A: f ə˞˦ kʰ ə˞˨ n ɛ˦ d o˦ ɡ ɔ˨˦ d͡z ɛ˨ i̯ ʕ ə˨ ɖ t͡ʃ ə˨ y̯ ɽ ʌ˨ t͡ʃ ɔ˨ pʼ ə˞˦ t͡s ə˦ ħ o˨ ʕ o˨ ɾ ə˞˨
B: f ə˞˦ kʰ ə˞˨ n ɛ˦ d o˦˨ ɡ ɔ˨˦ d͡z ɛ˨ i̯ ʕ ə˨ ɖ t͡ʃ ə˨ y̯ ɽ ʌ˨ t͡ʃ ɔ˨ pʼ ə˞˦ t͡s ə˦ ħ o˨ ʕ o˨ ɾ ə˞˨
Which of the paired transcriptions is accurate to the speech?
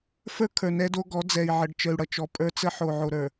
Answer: A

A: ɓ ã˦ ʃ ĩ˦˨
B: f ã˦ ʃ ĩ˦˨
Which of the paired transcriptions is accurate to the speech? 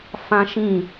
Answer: B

